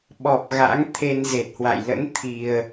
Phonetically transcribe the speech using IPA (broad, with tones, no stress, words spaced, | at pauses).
ɓɔ˨˩p̚ɣa̰˧˥ŋ t̪ʰe˧nze˨˩t̚hwa̰˧˨j lə̰˧˥nt̪ʰi˨˩ə̯